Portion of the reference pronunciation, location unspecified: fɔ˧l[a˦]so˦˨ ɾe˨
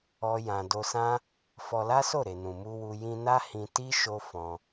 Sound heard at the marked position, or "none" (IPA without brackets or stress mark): a˦